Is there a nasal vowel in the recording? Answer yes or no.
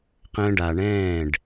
yes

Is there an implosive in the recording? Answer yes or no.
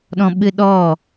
yes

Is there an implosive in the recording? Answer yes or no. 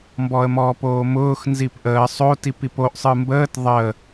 no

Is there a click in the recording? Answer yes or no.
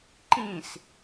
yes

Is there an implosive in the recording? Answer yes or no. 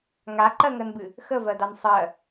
no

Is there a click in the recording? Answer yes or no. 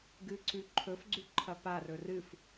yes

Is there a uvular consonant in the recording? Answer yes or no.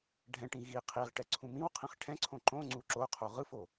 yes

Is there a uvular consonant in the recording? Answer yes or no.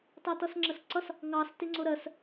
no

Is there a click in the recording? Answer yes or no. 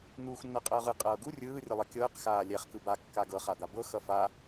no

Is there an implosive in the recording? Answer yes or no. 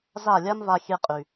no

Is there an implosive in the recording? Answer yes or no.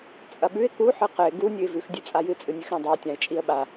yes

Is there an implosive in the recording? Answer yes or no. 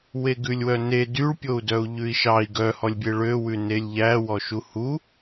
no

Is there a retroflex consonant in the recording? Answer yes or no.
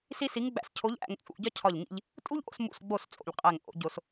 no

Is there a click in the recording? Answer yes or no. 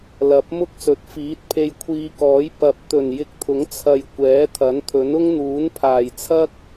no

